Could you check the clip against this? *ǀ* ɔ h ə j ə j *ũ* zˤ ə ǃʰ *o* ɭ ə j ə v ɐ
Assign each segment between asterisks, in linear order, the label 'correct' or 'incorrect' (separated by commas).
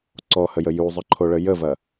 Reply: correct, incorrect, correct